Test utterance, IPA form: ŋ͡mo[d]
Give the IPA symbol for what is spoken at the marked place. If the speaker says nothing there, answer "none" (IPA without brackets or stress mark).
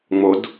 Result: d